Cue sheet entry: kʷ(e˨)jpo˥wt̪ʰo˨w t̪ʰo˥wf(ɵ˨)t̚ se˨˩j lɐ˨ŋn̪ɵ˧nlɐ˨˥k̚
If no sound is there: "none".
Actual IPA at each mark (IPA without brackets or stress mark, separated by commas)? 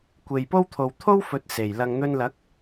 e˨, ɵ˨